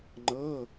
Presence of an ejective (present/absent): absent